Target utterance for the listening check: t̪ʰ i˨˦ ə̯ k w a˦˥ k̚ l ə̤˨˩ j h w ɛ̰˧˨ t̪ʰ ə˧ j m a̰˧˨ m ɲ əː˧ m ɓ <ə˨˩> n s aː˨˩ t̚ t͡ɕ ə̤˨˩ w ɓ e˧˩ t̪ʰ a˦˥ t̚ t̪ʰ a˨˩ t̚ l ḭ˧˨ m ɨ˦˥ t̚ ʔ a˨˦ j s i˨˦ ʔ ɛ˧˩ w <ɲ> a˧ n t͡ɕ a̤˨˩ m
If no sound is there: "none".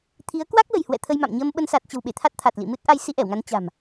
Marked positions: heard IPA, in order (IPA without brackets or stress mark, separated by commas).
ə˧, ŋ